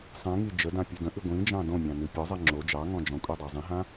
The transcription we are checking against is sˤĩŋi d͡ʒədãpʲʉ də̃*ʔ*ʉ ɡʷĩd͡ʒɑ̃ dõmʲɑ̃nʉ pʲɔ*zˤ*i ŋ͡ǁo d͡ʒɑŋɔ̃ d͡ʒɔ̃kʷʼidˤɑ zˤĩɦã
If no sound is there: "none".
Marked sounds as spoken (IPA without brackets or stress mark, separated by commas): ʔ, zˤ